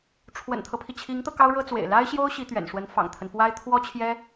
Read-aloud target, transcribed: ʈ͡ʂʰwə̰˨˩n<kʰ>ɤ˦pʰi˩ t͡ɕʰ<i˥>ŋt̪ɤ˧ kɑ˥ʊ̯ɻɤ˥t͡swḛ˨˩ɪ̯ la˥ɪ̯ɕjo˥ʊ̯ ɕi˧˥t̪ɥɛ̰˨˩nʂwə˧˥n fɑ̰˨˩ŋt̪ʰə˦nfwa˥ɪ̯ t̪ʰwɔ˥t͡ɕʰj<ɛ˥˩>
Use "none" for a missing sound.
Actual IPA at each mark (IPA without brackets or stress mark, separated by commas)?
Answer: t̪ʰ, i˧˥, ɛ˥